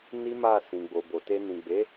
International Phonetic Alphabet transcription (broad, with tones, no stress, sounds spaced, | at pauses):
n i˦ m a˦˨ s ĩ˨ ɡ͡b o˨ b o˨ t e˧ n ĩ˨ ɡ͡b e˨˦